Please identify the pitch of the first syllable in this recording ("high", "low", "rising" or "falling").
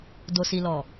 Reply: low